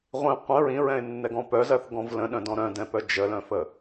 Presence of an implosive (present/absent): present